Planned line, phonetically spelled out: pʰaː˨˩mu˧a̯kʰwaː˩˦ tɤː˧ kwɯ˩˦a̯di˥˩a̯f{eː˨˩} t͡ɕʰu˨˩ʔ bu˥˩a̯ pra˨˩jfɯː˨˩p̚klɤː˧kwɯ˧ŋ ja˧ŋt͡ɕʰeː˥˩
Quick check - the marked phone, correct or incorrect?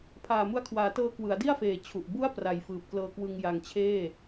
correct